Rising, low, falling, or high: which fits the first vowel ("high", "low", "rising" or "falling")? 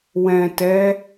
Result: low